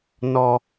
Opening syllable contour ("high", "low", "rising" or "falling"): low